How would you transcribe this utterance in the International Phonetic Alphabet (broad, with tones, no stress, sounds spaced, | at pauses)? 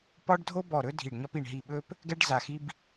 p ɒ˥ ɖ dʱ o˥ b ɔ˦˨ ɾ ɵ˥ dʱ i˦˨ ɖ ɲ ɒ˥ p i˦˨ ɳ ɦ i˦˨ ɓ ɵ˥ p | ɡ ɛ˥ ɖ z a˦˨ x i˥ b